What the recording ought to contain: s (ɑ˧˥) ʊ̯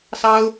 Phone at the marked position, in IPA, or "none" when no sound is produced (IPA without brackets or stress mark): ɑ˥